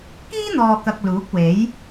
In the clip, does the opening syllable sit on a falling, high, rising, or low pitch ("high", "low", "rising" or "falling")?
high